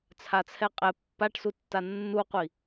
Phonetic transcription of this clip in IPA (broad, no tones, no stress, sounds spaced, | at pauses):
t͡sʰ a t͡sʰ ɛ qʼ ɛ pː a ʈ s u tː a nː u qʷ i